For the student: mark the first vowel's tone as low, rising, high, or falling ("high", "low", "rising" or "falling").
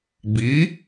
rising